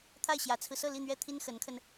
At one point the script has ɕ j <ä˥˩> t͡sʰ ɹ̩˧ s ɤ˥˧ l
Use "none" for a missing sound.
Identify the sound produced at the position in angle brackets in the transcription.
ä˧˥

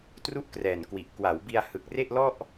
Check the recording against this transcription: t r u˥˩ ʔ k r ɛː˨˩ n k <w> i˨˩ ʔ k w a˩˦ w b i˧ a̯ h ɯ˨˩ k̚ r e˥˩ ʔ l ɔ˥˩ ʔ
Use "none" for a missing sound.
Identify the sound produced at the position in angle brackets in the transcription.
w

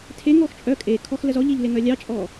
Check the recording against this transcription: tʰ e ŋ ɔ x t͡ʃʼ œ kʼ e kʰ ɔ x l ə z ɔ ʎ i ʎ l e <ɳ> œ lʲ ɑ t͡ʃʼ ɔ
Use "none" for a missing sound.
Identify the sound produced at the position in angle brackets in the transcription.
ŋ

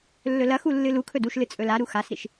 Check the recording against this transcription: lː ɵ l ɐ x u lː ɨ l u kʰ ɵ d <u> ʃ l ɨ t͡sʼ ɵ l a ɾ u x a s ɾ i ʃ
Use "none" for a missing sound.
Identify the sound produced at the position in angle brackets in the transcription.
u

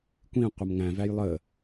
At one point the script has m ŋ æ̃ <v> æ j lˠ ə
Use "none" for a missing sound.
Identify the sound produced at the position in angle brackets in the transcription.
v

